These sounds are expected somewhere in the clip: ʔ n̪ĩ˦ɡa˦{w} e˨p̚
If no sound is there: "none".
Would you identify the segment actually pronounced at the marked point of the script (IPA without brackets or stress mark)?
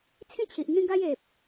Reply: j